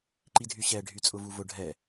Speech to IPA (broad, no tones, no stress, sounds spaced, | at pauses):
ǃ i dʱ y ɕ ɛ ɖʱ y t͡sʼ ʊ v u v ʊ ɖʱ ɛ